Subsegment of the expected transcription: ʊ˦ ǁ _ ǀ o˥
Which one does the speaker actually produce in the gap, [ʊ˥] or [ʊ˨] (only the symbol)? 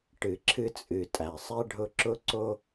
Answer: ʊ˥